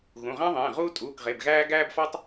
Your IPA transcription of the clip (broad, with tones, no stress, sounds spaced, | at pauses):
ɣ ũ˩˧˩ ʁ æ̃˥ ðˤ ẽː˩˧˩ ʁ uː˥ tʼ uː˩˧˩ k ʁ e˩˧˩ b ɣ æː˥ ɡ æː˥ b f ɒ˥ tˤ